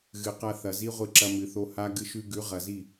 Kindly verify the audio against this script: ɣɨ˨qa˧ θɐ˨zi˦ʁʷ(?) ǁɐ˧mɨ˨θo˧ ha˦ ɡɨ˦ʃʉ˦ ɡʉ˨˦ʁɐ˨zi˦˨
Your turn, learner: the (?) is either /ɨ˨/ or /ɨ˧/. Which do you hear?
ɨ˧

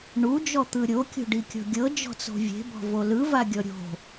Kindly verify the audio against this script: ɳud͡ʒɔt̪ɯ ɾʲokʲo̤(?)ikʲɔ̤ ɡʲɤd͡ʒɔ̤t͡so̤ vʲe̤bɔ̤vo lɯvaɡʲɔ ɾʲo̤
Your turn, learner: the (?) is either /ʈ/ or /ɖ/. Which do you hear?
ɖ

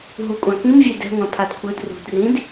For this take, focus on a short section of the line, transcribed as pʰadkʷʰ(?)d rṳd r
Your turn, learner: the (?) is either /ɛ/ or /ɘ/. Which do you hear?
ɘ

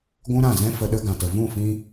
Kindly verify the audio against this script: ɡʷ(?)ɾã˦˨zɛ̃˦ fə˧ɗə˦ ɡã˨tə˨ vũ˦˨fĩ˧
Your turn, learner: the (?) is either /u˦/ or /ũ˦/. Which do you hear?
ũ˦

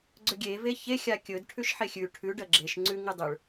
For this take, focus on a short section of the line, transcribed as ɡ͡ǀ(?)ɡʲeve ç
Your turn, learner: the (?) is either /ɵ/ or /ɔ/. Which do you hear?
ɵ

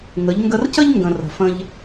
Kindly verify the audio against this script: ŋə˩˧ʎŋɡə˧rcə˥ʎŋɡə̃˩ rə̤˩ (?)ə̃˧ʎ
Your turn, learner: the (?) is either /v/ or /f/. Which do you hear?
f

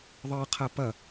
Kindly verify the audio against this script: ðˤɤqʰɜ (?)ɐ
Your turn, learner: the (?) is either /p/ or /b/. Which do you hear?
p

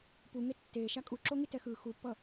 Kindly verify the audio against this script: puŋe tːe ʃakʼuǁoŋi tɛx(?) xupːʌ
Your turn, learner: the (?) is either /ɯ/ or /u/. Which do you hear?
ɯ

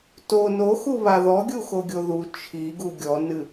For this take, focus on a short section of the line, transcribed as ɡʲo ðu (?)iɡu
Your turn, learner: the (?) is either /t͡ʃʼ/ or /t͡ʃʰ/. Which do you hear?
t͡ʃʰ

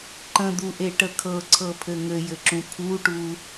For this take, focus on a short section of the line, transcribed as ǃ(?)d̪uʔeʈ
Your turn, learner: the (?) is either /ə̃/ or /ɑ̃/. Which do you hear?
ə̃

